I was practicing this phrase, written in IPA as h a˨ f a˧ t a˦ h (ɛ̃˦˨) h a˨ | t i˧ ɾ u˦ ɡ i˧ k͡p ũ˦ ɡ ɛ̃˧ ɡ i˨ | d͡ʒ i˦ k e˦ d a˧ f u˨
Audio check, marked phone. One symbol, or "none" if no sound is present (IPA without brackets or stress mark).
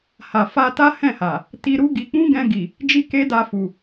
ɛ̃˦˨